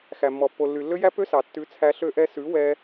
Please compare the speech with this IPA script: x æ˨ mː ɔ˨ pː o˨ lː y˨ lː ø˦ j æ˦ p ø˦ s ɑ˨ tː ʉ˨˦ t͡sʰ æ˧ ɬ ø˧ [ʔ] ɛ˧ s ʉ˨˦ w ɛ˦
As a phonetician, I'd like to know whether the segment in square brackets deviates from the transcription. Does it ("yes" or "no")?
no